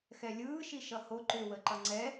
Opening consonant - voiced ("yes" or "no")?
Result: no